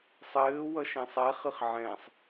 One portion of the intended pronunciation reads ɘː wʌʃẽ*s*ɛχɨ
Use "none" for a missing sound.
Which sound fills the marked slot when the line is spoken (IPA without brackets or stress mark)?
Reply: sˤ